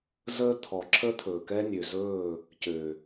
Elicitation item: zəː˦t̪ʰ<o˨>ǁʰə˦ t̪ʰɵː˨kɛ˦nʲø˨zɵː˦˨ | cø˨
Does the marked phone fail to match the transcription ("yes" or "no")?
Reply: yes